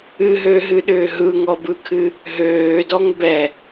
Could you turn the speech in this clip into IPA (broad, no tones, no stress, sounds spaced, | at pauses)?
ɨ ɦ ø ɦ ɨ ɗ ʏː ɦ ɯ ŋ ɔ b ɯ kʰ ɨ | ɦ øː d ɔ ŋ b ɛ